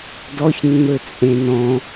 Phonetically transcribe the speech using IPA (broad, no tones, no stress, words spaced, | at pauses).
dɔçnːø t͡sʼẽnɔ̃